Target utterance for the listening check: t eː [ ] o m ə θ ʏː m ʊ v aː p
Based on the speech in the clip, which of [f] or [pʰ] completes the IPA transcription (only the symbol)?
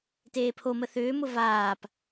pʰ